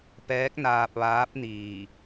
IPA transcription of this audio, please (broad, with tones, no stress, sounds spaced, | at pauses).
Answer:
p ɛː˧˥ k̚ n aː˧ p̚ ʋ aː˧˥ p̚ n iː˧˩